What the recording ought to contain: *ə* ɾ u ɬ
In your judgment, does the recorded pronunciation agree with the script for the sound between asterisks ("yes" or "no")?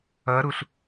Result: no